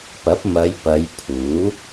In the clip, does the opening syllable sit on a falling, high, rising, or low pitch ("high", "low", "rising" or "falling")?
rising